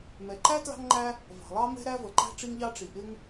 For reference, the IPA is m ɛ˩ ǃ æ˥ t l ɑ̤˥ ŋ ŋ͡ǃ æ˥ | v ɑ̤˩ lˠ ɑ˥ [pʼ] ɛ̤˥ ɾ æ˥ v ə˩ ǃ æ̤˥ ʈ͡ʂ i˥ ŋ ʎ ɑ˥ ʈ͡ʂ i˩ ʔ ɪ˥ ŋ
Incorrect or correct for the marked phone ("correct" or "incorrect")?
incorrect